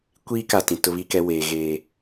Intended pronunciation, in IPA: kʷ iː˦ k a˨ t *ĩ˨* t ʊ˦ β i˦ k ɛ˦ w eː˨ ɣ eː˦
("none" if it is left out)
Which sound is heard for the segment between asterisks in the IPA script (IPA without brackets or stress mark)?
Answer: ĩ˨